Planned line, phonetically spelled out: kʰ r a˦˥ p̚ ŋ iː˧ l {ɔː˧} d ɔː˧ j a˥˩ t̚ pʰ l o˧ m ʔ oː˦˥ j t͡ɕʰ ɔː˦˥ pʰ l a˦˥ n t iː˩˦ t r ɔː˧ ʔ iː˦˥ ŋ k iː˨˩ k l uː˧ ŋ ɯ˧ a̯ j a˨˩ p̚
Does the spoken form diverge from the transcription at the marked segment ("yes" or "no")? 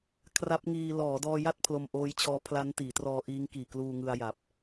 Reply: yes